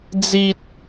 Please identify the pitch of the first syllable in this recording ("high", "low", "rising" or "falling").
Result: high